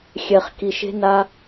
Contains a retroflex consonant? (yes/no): no